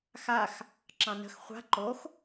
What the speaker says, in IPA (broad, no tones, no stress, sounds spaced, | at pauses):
x a x | ǁ ɑ̃ n ə̤ x χʷ a̤ ǃ o x